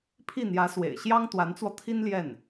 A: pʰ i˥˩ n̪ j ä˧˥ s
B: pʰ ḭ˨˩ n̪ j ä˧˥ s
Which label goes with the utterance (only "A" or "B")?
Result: A